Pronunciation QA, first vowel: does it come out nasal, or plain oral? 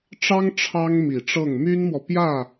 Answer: oral